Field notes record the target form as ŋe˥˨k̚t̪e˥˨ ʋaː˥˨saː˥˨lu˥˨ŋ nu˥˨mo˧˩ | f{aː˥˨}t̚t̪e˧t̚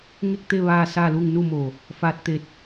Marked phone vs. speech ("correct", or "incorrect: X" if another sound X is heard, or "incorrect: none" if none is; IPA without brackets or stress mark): incorrect: aː˧